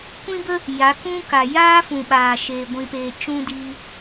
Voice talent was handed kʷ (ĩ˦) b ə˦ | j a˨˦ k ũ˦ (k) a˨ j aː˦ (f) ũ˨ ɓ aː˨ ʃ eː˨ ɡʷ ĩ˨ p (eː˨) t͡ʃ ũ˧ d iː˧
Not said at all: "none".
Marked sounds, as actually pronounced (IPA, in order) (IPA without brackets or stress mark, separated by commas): ĩ˦, k, f, eː˨